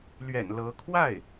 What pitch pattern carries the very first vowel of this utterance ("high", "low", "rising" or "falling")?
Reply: low